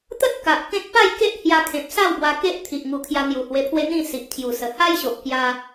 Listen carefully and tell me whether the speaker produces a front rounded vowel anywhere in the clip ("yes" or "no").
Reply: no